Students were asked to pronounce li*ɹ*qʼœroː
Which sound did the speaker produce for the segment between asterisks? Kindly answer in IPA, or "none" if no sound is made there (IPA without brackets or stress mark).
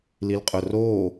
l